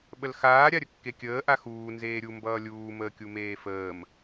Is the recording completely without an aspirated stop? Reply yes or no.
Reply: yes